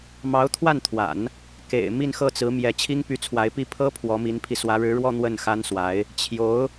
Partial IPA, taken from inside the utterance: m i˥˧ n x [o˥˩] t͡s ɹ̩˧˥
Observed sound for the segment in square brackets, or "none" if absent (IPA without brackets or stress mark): ɤ˥˩